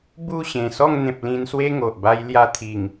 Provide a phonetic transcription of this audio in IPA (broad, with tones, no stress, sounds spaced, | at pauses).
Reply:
b u˥˧ ɕ ẽ˨˩ s ɔ˥˧ ŋ n̪ ẽ˨ p̚ l ĩ˧ n s w e˦ ŋ o˨ ʔ b a˧ j l j a˧ t̪ʰ i˨˩ ŋ